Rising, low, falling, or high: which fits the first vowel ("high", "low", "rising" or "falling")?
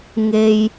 low